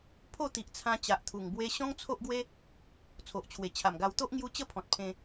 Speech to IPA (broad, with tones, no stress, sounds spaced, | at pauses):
pʰ o˥˧ t̪ i˨ ʔ t͡sʰ ã˧ t͡ɕ a˨ ʔ t̪ʰ u˨˩ ŋ b w e˦ ɕ ɔ̃˦ ŋ t͡sʰ o˦ ʔ ɡ w e˦ | t͡sʰ o˨ ʔ t͡ɕʰ w e˨˩ t͡ɕʰ a˨˩ m ɡ a˧ w t̪ o˦ ʔ ŋ j u˦ t͡ɕ ə˦ pʰ ɔ̃˨ t̚ pʰ ẽ˧